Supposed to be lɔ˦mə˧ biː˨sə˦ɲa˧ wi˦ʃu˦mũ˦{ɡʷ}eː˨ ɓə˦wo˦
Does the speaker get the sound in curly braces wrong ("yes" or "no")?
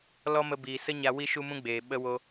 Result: yes